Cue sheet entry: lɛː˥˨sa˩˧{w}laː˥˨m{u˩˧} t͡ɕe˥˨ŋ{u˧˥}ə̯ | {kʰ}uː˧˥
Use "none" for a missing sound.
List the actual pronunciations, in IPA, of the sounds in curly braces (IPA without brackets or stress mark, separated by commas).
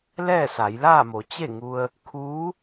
j, o˩˧, u˧, kʰ